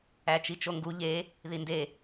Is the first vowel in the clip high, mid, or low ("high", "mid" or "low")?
low